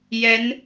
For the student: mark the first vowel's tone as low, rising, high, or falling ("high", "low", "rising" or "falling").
rising